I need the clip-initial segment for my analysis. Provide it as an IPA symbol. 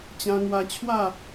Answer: t͡ɕ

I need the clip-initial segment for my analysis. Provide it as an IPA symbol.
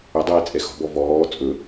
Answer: ɵ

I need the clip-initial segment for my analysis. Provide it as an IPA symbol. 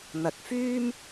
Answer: n̪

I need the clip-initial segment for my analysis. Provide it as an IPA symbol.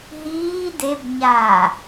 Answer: ɦ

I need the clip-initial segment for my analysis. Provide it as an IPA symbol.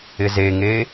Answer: ɪ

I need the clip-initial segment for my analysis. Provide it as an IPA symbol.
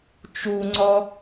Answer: t͡ʃ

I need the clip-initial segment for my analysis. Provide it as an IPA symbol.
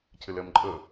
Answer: cʰ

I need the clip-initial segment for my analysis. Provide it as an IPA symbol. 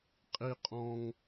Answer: qʼ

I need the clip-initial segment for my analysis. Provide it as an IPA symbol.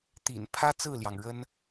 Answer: t̪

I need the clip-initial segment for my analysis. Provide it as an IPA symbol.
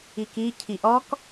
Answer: i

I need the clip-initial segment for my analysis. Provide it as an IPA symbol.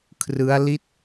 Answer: kʰ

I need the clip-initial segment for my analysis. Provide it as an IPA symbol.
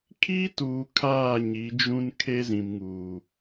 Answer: kʰ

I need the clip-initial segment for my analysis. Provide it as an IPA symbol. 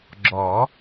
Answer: ɡ͡ǁ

